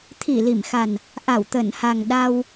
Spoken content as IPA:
t̪ʰ i˧˩ l i˧˩ m x a˨˩ n | ʔ a˧˩ w t̪ ə˧˩ n h a˨˩ ŋ ɗ a˧ w

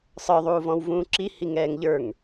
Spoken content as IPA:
sˤ ə˞ ðˤ uː v ɔ̃ w v ũː ǁ i h i ŋ ɛː ŋ ʎ ə˞ ŋ

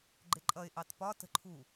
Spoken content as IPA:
ɡ͡ǃ ɪ ǃʼ ʌ ɪ̯ ʔ ɑ t p ɒ t ə̤ ǃʰ u

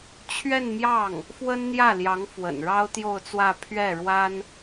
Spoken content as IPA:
t͡ɕʰ ɥ ɛ˥˧ n m j ɑ˥˩ ŋ | f w ə˥ n n̪ j ä˥˩ l j ɑ˧˥ ŋ f w ə̰˨˩ n ɻ ɑ˥ ʊ̯ t̪ j o˥˧ ʊ̯ t͡s w ä˥˧ pʰ ɥ ɛ˥˩ ɻ w a˥ n

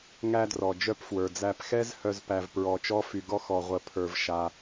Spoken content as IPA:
ŋ æ˧ d r ɔ˩ d͡ʒ œ˧ p f w ə˞˩ d͡z æ˧ p x ɛ˥ z h œ˧ z p æ˧ v p ɹ ɔ˧ t͡ʃ ɔ˥ f y˧ ɡ ɔ˥ x ɔ˧ ʁʷ ə˧ pʰ ə˞˧ v ʃ a˧

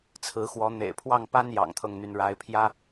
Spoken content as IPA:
t͡sʰ ɹ̩˧˥ x w ɔ˧˥ n̪ ḛ˨˩ ɪ̯ pʰ w ɑ˥˩ ŋ p a˥ n j ɑ̰˨˩ ŋ t̪ʰ ɤ˥˩ ŋ n̪ y˧˥ n ɻ a˧˥ ɪ̯ pʰ j ä˥

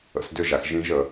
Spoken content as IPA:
ə̰˩˥ s d ʏ˥˨ ʒ a˨ x ʒ ĩ˦˥ ʒ ə˨

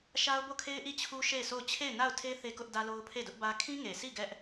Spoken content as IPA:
ʃ a˦ ʊ̯ b o˦˨ kʰ e˦ ɪ̯ ʔ i˦˨ t͡ɕʰ u˦ ʃ e˦˨ ɪ̯ sʰ o˦˨ ʊ̯ t͡ɕʰ e˦˨ ɪ̯ n a˦˨ ʊ̯ tʰ e˦ θ e˦ k ʊ˦ ʔ d ä˦ l o˦ ʊ̯ pʰ e˦˨ d ʊ˦ ʔ b ä˦ kʰ ĩ˦ ŋ e˨ s i˦˨ ɡ ɛ˦ ʔ

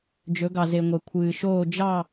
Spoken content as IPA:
d͡ʒ ɵ˩˧ ɡ ɑ˩ z e˩ ŋʷ ɛ˩ kʷʰ ɨː˩ ʃ oː˦˨ d͡ʒ ɑ˦˨

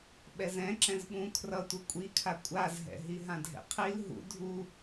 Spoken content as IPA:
ɓ ɛ z ɛ̃ ǁ ɛ̃ z ɓ ũ kʰ r ʌ tʷ ɯ kʷʼ i kʰ a kʷʼ a z ɦ ɛ̰ ɦ i ɦ ã dʱ ɛ̰ qʰ i l ɦ ṵ dʱ u

